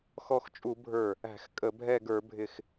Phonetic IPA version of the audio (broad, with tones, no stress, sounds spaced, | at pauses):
x ɔ˧˩ x t͡ʃʼ u˧˩˧ bʱ ə˞˧˩ | æ̤˧˩˧ x kʼ ə˧˩˧ bʱ ɛ˧˩ ɡ ə˞˧˩˧ bʱ ɪ˧˩ x